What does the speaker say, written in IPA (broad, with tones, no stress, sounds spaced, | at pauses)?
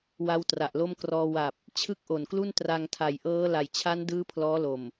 w a˦˥ w t r a˨˩ ʔ l o˥˩ m k r ɔː˧ w a˨˩ p̚ | t͡ɕʰ ɯ˥˩ k̚ ʔ o˨˩ n k l u˥˩ n t r a˧ ŋ tʰ a˨˩ j ʔ ɤː˦˥ l a˨˩ j t͡ɕʰ a˦˥ n d ɯː˦˥ pʰ l ɔː˦˥ l o˨˩ m